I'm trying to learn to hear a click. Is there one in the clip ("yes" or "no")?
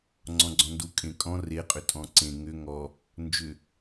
yes